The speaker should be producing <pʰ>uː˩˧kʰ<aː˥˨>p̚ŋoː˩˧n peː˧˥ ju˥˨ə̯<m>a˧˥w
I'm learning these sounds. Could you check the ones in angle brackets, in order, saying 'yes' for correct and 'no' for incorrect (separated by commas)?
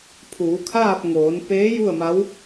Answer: yes, yes, yes